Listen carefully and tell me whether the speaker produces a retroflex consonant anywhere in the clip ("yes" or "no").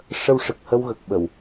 yes